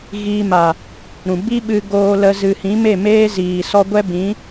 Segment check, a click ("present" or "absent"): absent